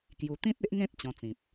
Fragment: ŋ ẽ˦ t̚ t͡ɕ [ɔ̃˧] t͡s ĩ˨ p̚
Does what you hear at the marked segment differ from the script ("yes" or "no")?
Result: no